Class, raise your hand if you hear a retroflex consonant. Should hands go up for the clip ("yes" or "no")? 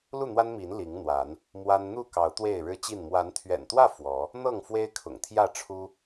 yes